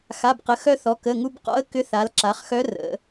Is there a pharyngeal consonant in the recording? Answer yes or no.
no